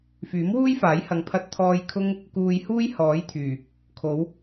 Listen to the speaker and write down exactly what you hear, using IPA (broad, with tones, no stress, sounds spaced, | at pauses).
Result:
f yː˨˥ m w uː˥ j f aː˨˥ j h ɐ˨˧ ŋ pʰ ɐ˥ t̚ t̪ʰ ɔː˥ j kʰ ʊ˥ ŋ | k uː˧ j h uː˥ j h ɔː˨˥ j t̪ʰ yː˨˩ | kʰ o˨˧ w